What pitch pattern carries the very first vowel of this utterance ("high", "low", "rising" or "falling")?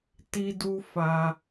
high